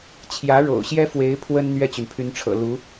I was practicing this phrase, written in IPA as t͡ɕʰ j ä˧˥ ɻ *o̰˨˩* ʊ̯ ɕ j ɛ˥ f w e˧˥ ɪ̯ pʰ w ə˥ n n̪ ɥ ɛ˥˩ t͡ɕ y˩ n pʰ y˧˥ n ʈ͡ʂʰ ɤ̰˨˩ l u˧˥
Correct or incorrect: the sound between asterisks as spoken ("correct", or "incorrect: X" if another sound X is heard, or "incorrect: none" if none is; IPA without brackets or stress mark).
correct